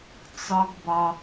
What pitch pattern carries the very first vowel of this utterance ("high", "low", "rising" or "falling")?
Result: high